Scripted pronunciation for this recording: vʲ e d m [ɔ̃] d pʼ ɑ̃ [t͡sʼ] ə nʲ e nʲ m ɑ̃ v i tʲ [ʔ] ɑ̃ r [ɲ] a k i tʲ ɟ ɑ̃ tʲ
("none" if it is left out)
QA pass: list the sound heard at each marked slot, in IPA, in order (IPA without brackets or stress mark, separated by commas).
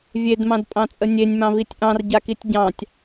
ɑ̃, t͡sʼ, ʔ, ɟ